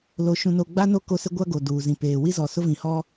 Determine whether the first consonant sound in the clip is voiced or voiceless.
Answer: voiced